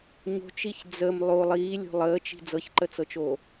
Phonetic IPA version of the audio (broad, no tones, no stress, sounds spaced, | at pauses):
ɲ o̤ t͡ʃ i ç d͡z ə m lˠ o lˠ iː lʲ o̤ lˠ əː t͡ʃ i̤ d͡z ɤ ç ǃ ə t͡s ɤ t͡ʃ oː